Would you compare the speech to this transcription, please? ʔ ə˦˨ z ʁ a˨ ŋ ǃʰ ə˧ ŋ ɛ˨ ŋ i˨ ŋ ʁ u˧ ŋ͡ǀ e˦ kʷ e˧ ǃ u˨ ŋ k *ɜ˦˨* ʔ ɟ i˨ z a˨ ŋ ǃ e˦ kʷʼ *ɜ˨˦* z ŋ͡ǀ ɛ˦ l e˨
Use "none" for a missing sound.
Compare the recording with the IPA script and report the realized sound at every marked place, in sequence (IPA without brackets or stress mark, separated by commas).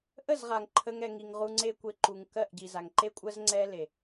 ɜ˦˨, ɜ˦